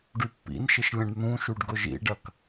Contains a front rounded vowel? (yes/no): yes